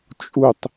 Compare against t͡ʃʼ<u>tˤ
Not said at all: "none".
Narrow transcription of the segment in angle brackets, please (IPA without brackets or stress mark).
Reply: u